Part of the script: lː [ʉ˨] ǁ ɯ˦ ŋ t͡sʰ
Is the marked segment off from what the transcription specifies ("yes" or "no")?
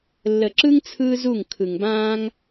yes